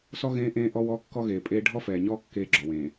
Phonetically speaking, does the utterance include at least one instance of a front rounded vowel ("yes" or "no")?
no